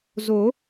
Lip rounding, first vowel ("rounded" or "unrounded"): rounded